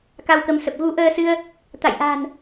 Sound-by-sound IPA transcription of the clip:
ka˧wkə˨˦msə˨˩p̚ ɣu˨˦ʔəː˧sɨ˧ə̯ | t̪a̰˧˨jʔa̤˨˩n

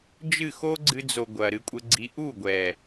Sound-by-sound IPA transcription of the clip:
d͡ʒɨ˦˨ xo˦ɡ͡ǀɨ˧d͡zo˨ ɡʷɐ˨ɾɨ˧kʷʼɘ˧ɡ͡ǀi˧ ʔu˦˨ɡʷɛ˨

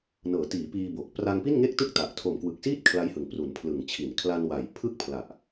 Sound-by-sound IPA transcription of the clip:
nɤː˩˦tiː˩˦ piː˧boː˨˩k̚ pra˧ŋpi˥˩nŋe˥˩k̚tɯ˥˩k̚ ta˨˩ʔ tʰo˨˩mkwɯ˨˩k̚siː˥˩t̚ kʰla˦˥jhɯ˨˩ŋpru˩˦n pʰlɯ˨˩ŋt͡ɕʰi˨˩n kʰla˧nwa˨˩j pʰɯ˥˩k̚pʰla˨˩ʔ

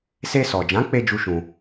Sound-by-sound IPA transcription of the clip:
se˧sɔ˨d͡ʒã˨˦k͡pe˧ d͡ʒu˦ʃũ˧

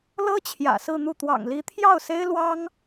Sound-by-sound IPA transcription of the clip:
lɤ˥ t͡ɕʰjä̰˨˩sɹ̩˥˧n̪u˥˩ t̪wɑ̰˨˩ŋli˧˥t̪ʰjɑ˥˩ʊ̯se˥ɪ̯ lwɑ˥ŋ

